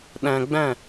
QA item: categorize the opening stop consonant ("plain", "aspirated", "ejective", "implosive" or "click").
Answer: implosive